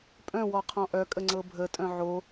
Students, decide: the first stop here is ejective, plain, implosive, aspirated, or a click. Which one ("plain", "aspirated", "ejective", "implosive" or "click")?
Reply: ejective